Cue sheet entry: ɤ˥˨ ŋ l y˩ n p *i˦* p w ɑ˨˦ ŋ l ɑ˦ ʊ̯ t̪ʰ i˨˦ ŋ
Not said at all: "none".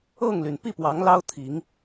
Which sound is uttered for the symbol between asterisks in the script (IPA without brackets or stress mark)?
i˥˨